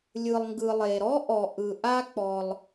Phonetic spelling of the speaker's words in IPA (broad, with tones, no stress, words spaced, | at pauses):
lʲɯ˩lˠŋɡɯ˩ lˠe˩ɾɔ˥ʔɔ˩ ʔɯ˩ʔa˧k͡pɔ˩lˠ